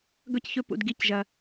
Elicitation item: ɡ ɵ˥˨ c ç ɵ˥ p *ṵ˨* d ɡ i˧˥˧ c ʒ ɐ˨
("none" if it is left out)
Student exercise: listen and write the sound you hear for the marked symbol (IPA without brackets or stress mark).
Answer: ṵ˨